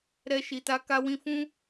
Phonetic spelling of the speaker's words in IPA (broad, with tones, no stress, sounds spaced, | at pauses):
ɾ ɛ˦ ʃ i˧ t a˦ k a˦ w ĩ˦ f ũ˦